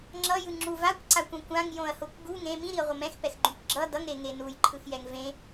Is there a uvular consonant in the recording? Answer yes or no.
yes